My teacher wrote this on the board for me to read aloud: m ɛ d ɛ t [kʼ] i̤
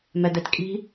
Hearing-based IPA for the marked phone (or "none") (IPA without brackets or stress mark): kʼ